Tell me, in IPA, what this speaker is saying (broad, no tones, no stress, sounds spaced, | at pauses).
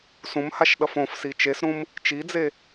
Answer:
s ũ m h a ʃ ɗ ʌ f õ f s i t͡ʃ e s ɾ ũ m | t͡ʃ i d͡z e